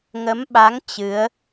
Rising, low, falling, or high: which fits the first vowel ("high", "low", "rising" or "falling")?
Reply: rising